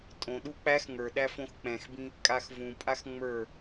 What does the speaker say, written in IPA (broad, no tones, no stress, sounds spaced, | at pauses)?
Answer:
tʼ õ ɗ u k͡p æ x ŋ ə˞ ɗ æ f õ x k͡p ɛ̃ x b ĩ | kʼ a x v ũ pʼ a x ŋ͡m ə˞